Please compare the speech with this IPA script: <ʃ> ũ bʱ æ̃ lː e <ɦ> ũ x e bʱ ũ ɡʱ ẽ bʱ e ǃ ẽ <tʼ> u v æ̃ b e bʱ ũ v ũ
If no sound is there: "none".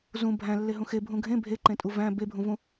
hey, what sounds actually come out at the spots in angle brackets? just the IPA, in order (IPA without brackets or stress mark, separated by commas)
z, ɦ, tʼ